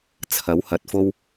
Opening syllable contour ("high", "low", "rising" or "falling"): rising